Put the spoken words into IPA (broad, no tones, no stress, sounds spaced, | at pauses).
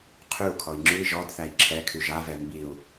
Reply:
qʰ ʉ u̯ kʰ ɔ i̯ ŋ͡ǁ ʉ i̯ ʒ ɔ d θ æ i̯ ǁʰ ɛ kʰ y ʒ a v ɛ m b i u̯